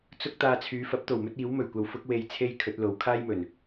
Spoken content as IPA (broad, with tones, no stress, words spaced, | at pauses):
t͡sʊ˥k̚ t̪aː˧t͡sʰyː˨˧ fɐ˨˥p̚t̪o˨˩wmɵ˥t̚ iː˨˥wmɵ˨˩ɥkʷɐ˧w fʊ˥k̚we˧jt͡sʰe˥j kʰɵ˨˥t̚lo˨˥w kʰaː˥jmɵ˨˩n